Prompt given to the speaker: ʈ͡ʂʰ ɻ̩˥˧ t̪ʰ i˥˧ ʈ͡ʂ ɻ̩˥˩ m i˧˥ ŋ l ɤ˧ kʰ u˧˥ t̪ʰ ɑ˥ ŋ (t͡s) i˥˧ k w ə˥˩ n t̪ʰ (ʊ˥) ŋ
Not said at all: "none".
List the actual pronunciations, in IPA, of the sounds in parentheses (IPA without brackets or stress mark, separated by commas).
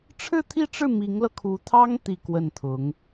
t̪, ʊ˧˥